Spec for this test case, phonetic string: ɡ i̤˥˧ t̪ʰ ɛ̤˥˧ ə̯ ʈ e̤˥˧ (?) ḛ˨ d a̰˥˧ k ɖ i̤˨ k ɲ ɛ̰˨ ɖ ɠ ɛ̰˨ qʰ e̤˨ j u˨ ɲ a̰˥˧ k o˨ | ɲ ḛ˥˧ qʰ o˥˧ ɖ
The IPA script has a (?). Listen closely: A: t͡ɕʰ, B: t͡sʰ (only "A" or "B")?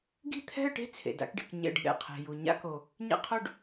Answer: B